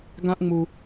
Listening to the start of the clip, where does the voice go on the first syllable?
high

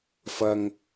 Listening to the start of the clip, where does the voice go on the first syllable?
low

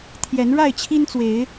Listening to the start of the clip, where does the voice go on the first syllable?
rising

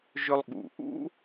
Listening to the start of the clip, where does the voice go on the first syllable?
high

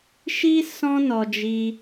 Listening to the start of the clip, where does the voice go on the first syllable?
high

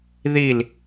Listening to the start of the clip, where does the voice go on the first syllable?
falling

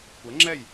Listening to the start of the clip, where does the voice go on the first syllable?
rising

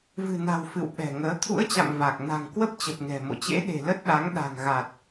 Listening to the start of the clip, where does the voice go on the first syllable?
low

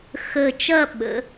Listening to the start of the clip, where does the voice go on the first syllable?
low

